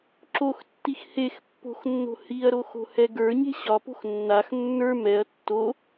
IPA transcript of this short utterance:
ǁoxtːix hexpːo̤xnːo̤ hiɐ̯ɾoxo̤hɛ ɡə˞ɲe̤ ɕɒpo̤x nːax nːə˞ mɛɐ̯ tːo

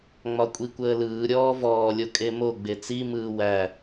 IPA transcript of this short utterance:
ŋ͡mɒkʷʼikʷəːlɯː ɾʲɔːvɔː lʲokʼemo ɡ͡bet͡si mɯːwæ

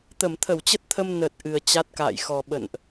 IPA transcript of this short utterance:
t̪ə˧˩mt̪ʰə˧˩wt͡ɕə˦˥t̚t̪ʰə˧m nə˨˩t̚ ʔɨ˨˩ə̯t͡ɕa˦˥t̚ka̰ː˧˨jxɔ˨˩ ɓə̰˧˨nʔ

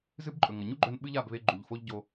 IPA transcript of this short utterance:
zɨ˦bǃʼɵ˨ŋɐ˨ ɲu˦ɡ͡ǃɵ˧n ɓɨ˦ʎa˦˨b βe˧ɡ͡ǃu˨ʎ fo˦ʎ ɟo˧

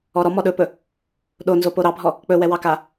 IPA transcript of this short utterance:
ɔɾɔ mɔɗɵpɵ | ɗonzo poɾɑbʱɔ | k͡pɵwɛwɑka

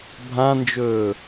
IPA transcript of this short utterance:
bʱãnd͡ʒɵː

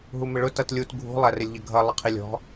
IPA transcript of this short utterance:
ɦumɪɭʊ tʌtlʲut ɡʱṳ lˠærɪlʲʎəɡʱʌ lˠəqʰilʲɔ̤

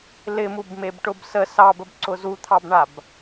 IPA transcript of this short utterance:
lɪmubmebʈʊb sə sɑbəbǀʊ zut̪ʰɑbɳab

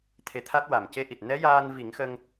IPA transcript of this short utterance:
t̪ʰe˧˥t̪ʰa˦˥t̚ wa˨˩mce˧˥ʔi˨˩t̚ nɛ˧˥ jaː˧nvi˨˩˦ŋxə˧ŋ

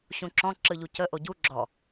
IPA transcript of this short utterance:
ɕũǁɔ̃ ǁɯʎucə ʔoɟu ɡ͡ǁɔ

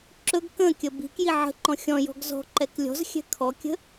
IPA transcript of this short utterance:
ǁɵɡ kə̃kʲə bi̤k jiʕə̤ǃɔ̃ xʲɔ̃jɔ̤ɡ zɔ̤ ǃɛklʲɔ̤zxʲɛ̤ kʰɔkʲə̤

